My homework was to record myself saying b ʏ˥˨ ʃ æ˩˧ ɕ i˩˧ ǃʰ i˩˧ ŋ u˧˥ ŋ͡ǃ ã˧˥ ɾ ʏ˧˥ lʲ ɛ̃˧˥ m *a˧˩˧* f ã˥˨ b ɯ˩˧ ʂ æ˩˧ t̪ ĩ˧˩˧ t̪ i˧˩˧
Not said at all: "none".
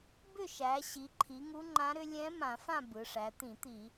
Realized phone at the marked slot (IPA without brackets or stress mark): ã˧˩˧